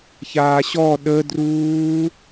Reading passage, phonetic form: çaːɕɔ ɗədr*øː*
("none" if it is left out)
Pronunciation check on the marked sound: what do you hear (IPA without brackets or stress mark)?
uː